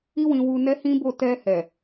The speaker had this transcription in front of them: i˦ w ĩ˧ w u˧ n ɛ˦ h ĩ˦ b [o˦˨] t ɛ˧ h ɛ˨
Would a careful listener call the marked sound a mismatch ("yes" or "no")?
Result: no